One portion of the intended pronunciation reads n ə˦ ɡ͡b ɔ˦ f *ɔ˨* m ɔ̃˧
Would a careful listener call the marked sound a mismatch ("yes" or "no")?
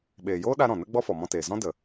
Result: no